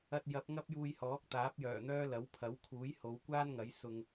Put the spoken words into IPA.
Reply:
ɐ˧t̚jɐ˨˥p̚ ŋɐ˥p̚juː˧jhɔː˨˥k̚ t̪aː˨˥p̚jœː˨˩n̪œː˥ lɐ˨˥wpʰɐ˨˥wkʰuː˨˥jho˨˧w kʷaː˥nŋɐ˨˥j sʊ˧ŋ

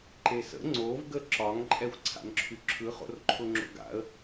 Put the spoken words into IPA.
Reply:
ǃesə̰ ŋ͡ǀov ɡəǁɒŋ ǃʼɛxʷǀʰa̰nǁʰyǁʰɯ χo̰rǃʰʊŋ͡ǁo̰ɡa̰ə̯

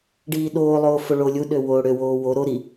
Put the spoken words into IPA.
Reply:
ɖiːɗoːlˠoː foɭolʲuɗø woːɽøwoː wo ɾo ɾi

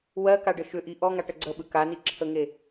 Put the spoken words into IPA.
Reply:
wɜkaɖə ʃʏʔi ʔɔŋaʈə ɡ͡ǀəɓɯ kaniǁʰəŋe

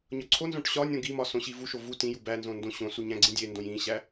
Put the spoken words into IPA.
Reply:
ɲɒǀʰonzõʈ ɕɒnʲõ ɡimɒ sõɕivuʃo vu tĩju bænzõ ndõɕõsu ɲæ̃ɡ͡ǀĩdʲendõj ĩɕæ

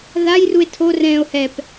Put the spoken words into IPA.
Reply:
ðajrue̯ tʰo rɛ̃ːo̯hɛp

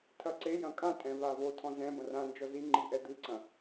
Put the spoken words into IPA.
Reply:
tʰɐǀejɐ̃ kʼãtʼɛ̃ vavotʰɔ̃ zɛ̃ bɐ̃rãnd͡ʒɔ zi ŋ͡ǃiʔɛd̪ɨǀɐ̃

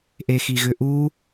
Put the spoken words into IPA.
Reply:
ʔexiɣʏʔu

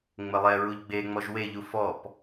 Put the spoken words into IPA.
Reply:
ŋ͡məlˠɛɹuʎ ɡ͡beŋ͡mɔʒ weʎu fɔp

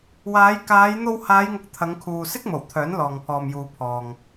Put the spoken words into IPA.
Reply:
waː˨˧jkaː˨˧j n̪o˧whaː˨˧jŋʊ˨k̚ t̪ʰɐ˨˧ŋkʰuː˨sɪ˥k̚mo˨˩w t̪ʰœː˨˥nlɔː˨ŋpʰɔː˨mjuː˨ pʰɔː˨ŋ

